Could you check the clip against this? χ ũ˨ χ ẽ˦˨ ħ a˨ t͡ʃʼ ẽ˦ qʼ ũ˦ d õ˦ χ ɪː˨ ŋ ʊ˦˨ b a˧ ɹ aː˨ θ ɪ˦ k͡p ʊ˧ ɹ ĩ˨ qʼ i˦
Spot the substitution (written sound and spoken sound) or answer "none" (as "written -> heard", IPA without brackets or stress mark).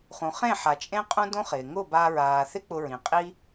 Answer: none